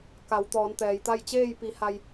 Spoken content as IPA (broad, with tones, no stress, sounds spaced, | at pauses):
k a˩˧ w t̪ ɔː˩˧ n t̪ ɛː˩ j t̪ a˥˨ j t͡ɕ eː˥˨ j p i˩˧ h a˧ j